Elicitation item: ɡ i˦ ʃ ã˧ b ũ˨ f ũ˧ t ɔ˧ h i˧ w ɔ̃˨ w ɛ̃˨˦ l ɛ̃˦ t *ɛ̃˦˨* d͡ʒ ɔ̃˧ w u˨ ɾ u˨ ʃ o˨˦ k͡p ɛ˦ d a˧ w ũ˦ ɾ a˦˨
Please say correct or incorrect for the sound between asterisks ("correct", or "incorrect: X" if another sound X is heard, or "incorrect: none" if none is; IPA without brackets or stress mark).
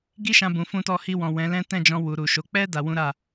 correct